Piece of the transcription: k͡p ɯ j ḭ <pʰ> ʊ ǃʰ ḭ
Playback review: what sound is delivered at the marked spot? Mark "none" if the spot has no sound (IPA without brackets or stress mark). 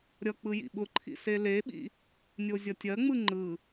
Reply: ɓ